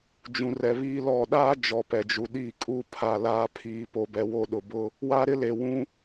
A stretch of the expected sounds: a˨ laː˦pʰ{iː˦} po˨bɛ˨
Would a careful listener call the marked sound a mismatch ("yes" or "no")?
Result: yes